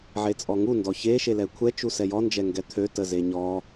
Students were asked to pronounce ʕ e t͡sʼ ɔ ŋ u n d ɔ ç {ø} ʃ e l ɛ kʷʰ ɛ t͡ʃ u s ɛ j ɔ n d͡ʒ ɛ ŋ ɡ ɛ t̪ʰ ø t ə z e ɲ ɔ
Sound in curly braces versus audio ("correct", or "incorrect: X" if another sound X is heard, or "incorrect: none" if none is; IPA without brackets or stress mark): incorrect: e